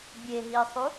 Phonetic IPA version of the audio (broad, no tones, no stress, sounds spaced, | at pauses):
bʲ e ɦ i sˤ u